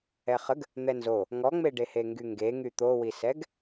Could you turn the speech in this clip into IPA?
ɛχəɡ | n̪ɛnzo | ŋɔŋ͡meɖehe ŋɡyŋɡeŋy t̪owisɛɡ

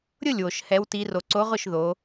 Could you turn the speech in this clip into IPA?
ɾʲʊ˥˩lʲwo˩ʃhɛ˩˧w ti˩˧ro˩ǀo˨˥ʁʊ˥˩ʃ ðo˩˧

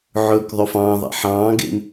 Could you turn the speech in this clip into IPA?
ʕɵːkðˤøfɑ̃ːðˤḭ ħɑ̃ː ɡḛm

